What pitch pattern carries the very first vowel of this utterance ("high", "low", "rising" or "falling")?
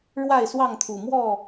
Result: falling